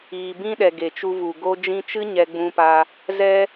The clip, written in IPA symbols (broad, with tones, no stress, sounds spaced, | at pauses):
iː˨ b ĩ˦ ɗ ɛ˨ ɡ e˨ t͡ʃ u˧ v u˨ ɡ o˧ d͡ʒ ĩ˧ t͡ʃ ɨ˦ ɲ ɛ˧ ɡ͡b ũ˧ p a˧ | z ɛ˧